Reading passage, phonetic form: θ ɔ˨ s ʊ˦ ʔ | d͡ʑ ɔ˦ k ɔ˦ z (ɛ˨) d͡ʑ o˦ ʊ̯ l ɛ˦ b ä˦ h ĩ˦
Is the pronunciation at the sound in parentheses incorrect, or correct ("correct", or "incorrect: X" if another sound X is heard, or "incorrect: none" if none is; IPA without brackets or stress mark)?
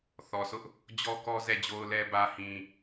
incorrect: ɛ˦˨